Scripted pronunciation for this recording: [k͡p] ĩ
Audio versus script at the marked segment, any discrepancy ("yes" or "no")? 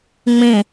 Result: yes